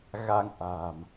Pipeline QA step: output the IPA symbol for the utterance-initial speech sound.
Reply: ɣ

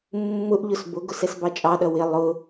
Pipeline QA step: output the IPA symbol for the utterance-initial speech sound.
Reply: mː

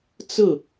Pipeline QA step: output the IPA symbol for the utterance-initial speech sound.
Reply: t͡s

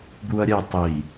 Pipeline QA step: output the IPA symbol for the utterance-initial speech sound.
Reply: d̪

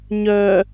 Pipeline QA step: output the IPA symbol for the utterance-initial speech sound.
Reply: ɲ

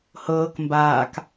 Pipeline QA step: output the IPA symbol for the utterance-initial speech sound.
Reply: h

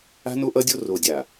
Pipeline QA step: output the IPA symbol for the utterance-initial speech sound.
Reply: a̤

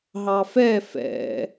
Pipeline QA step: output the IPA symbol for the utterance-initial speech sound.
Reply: ɦ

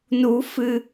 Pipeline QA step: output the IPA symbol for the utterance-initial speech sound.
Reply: n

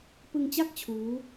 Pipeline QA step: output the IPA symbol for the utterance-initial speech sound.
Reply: p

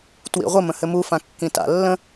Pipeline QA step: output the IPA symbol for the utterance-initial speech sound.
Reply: t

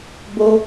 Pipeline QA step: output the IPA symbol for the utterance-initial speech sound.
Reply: b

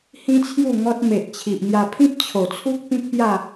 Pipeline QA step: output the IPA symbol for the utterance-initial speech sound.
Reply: h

